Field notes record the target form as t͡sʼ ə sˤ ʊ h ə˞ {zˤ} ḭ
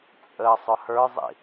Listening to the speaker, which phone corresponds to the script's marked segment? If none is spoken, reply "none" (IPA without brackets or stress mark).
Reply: zˤ